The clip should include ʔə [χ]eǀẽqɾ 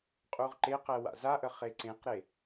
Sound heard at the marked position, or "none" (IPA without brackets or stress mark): χ